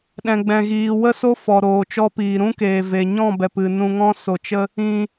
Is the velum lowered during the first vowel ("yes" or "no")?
yes